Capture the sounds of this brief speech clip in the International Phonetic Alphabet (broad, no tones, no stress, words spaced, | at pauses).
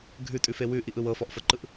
ɡʱʉtʼʉfe wʉʔiʔɯw ɤfɔʔfɤǃɯʔ